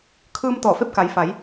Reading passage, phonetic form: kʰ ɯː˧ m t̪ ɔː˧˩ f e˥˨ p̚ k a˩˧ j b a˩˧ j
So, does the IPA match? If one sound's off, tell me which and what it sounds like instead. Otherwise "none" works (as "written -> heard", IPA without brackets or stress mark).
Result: b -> f